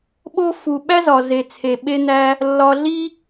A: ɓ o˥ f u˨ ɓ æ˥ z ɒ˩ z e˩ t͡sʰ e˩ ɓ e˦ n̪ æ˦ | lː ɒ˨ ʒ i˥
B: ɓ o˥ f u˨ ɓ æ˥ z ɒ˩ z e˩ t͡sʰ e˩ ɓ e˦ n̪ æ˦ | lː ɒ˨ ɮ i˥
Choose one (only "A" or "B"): B